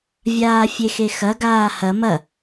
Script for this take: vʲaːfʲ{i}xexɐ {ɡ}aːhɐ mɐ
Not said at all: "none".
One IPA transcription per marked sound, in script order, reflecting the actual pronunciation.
e, ɡ

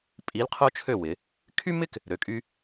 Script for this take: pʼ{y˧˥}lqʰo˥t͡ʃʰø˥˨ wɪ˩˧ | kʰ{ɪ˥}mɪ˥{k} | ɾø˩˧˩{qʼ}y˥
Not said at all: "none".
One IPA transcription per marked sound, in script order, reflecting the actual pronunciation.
i˧˥, y˥, k, kʼ

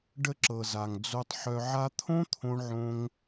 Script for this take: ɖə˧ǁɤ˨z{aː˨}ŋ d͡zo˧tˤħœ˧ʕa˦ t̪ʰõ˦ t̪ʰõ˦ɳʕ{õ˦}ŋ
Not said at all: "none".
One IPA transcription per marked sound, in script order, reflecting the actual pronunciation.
a˨, õ˦

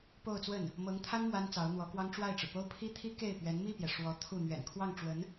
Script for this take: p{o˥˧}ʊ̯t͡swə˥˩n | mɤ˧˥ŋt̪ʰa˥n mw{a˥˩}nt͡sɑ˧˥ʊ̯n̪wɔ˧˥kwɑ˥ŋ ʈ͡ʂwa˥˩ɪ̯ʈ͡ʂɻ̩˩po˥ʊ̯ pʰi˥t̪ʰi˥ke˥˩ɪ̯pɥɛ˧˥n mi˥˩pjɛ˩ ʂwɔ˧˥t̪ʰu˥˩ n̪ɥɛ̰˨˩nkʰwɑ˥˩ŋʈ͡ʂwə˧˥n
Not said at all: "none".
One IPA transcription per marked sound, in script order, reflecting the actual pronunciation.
o˥˧, a˥

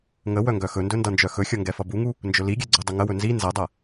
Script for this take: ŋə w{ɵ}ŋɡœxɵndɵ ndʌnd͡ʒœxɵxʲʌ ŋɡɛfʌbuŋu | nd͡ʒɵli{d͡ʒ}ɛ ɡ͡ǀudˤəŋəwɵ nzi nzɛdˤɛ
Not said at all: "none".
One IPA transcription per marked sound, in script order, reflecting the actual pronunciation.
œ, ɡʲ

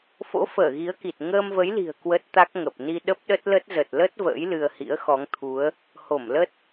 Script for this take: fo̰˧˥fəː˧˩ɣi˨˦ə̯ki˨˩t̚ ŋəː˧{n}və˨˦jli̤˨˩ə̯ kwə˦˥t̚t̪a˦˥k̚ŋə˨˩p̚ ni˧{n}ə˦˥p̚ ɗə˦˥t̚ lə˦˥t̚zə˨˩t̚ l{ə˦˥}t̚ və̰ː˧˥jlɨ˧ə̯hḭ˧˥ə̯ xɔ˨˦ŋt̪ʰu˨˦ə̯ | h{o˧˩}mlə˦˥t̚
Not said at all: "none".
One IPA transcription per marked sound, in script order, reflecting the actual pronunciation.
m, ɗ, ə˦˥, o˧˩

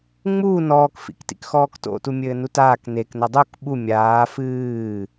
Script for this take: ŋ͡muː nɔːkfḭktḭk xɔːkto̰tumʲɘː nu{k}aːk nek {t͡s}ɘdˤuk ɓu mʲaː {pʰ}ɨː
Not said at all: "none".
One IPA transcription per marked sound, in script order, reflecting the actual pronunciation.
t, n, f

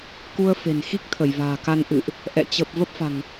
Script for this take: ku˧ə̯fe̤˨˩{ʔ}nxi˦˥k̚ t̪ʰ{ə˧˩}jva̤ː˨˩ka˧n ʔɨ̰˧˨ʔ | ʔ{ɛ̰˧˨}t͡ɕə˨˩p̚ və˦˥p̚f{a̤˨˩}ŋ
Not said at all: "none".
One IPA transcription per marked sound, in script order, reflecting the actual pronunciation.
none, ə˧˩, ɛ̰˧˨, a̤˨˩

